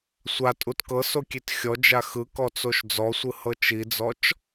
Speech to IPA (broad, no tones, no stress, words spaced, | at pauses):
sʷatʼut kɤsokʲet xʲɔd͡ʒa xɯkɔt͡soʃ d͡zɔsʷɯhɤ t͡ʃid͡zɔt͡ʃ